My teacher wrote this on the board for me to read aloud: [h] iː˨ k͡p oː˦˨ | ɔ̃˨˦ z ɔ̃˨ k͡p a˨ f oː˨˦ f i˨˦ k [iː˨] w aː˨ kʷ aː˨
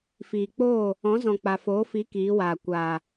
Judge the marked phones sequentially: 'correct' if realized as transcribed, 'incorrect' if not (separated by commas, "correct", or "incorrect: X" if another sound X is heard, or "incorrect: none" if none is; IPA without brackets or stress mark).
incorrect: f, incorrect: iː˨˦